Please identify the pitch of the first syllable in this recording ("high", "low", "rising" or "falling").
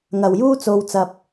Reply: low